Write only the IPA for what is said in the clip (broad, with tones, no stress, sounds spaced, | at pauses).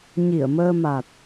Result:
ɲ i˧˩ ə̯ m əː˧ m a˨˩ t̚